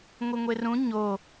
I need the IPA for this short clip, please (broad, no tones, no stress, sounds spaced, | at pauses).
ŋʷ i ŋʷ e r ũ ɲ o